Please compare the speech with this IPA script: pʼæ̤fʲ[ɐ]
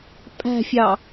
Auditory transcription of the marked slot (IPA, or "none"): ɑ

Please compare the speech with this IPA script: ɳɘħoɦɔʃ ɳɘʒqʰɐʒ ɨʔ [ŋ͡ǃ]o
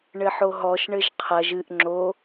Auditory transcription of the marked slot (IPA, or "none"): ŋ͡ǁ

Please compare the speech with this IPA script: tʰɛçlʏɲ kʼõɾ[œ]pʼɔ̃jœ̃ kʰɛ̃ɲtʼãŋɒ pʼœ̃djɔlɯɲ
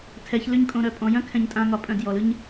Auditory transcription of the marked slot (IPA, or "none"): œ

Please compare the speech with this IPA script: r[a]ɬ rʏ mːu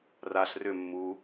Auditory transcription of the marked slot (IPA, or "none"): a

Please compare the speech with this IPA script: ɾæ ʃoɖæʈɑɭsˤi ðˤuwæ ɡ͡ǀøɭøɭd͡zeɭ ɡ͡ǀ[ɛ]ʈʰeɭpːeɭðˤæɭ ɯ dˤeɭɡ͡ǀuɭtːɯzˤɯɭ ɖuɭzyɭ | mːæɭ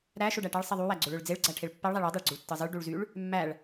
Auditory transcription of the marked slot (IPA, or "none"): æ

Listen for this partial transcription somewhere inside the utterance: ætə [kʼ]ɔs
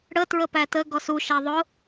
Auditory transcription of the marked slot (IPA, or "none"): ɡ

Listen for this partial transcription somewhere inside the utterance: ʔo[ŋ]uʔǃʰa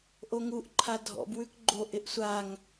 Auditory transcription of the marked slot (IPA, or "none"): ŋ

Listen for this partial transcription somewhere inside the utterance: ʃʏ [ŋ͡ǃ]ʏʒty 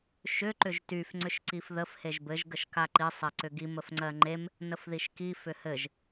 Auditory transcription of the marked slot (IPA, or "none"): ǃ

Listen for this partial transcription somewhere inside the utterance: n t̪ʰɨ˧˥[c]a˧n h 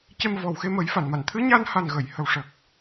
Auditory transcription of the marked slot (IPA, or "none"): ɲ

